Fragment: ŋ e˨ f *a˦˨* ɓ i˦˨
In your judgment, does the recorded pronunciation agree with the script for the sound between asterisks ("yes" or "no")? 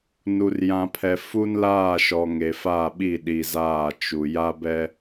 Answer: yes